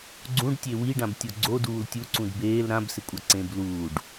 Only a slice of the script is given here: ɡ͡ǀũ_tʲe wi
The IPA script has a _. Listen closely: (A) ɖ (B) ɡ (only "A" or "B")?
A